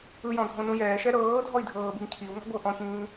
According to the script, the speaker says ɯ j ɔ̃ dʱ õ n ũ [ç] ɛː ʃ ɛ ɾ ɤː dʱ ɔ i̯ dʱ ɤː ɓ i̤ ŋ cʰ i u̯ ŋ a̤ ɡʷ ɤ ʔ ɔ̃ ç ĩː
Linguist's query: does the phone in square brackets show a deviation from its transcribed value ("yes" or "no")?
yes